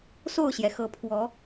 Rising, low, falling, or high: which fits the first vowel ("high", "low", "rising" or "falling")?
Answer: falling